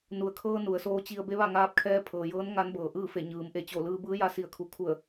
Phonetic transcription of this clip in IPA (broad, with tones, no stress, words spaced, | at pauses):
nu˩˧ə̯kʰɤː˧ nu˩˧ə̯soː˧˥t͡ɕi˧ə̯ be˧˥ʋa˥˨ŋaː˧˥p̚kʰɛː˧˥ pʰɤː˩jɤː˧˥n ŋa˧˥nbɤː˩ʔɯː˥˨fe˧˩ ɲɯː˩˧m ʔe˧˩t͡ɕo˧˩lɯː˧ bɯː˧˥ja˧si˧˩ə̯kʰu˩˧ kʰu˧˩ə̯